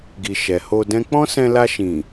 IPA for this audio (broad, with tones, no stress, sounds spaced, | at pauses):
ɡ i˨ ʃ ɛ˨ h o˧ d ɛ̃˦ k͡p ɔ̃˦ s ɛ̃˧ l a˧ ʃ ĩ˨